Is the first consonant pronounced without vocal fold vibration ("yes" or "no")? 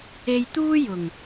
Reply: no